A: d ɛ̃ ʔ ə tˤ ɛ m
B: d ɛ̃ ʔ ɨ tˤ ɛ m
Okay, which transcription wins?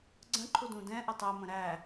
A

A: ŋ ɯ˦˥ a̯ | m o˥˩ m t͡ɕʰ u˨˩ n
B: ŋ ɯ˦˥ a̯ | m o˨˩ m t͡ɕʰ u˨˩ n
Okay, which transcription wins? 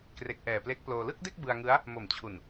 B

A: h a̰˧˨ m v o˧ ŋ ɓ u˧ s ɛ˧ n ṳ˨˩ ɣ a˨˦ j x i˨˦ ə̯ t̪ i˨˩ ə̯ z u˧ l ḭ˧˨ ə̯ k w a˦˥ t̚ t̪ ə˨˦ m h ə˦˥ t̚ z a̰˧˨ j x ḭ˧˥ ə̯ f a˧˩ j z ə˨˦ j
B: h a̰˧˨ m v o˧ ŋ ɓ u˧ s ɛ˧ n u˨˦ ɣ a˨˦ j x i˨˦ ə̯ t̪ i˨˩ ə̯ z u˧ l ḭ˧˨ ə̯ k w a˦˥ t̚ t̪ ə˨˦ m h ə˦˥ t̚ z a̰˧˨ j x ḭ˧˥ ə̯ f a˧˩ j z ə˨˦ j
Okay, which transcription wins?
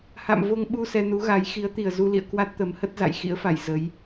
B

